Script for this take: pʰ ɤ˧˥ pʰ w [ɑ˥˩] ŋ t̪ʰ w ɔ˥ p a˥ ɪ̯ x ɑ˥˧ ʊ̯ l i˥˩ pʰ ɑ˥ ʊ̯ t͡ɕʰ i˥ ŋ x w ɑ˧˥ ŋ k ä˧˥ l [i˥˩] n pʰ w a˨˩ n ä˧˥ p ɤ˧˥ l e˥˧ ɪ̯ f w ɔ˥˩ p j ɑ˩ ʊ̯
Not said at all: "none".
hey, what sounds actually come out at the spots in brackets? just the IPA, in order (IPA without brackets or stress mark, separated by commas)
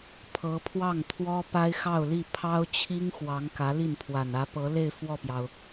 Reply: ɑ˥˩, i˥˩